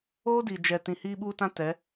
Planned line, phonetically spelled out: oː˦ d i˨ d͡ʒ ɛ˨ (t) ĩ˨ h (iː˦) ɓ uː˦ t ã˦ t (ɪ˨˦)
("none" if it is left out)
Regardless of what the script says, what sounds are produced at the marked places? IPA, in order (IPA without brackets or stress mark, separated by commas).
t, iː˦, ɛ˨˦